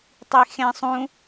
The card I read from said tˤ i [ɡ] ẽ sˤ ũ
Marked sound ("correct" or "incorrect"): incorrect